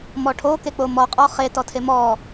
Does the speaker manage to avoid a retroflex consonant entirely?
no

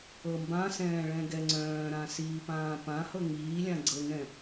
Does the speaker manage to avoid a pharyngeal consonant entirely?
yes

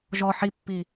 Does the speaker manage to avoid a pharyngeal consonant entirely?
no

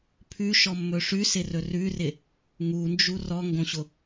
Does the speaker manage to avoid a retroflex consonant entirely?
no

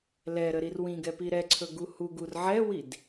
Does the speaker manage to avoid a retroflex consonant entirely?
yes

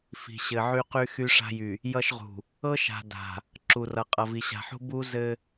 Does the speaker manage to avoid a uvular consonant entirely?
no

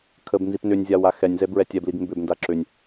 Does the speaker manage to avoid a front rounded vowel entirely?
no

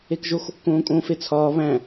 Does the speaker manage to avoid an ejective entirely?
no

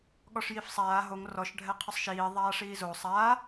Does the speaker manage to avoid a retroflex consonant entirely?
no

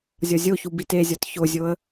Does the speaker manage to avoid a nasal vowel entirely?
yes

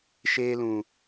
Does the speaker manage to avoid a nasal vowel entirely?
no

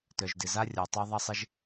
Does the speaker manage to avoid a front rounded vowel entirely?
no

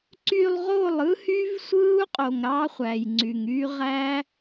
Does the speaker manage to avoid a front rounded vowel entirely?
no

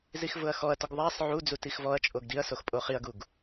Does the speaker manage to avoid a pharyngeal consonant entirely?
no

